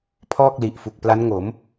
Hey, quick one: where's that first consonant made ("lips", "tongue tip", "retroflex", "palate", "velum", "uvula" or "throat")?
lips